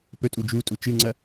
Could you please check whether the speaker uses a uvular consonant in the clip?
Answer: no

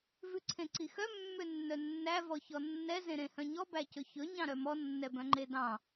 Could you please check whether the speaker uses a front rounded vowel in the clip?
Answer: yes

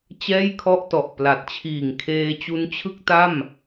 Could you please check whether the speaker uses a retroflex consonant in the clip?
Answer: no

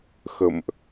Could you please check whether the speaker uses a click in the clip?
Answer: no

